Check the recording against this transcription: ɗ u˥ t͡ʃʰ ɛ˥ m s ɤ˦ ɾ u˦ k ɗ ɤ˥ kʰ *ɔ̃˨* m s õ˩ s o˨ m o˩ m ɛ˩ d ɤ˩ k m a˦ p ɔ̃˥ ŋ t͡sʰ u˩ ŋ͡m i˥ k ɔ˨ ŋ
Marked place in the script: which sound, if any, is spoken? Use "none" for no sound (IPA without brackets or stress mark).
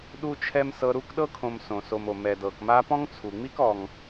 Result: õ˨